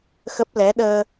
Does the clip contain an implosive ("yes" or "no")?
yes